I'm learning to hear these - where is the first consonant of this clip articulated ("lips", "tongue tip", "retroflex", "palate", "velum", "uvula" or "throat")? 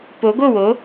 lips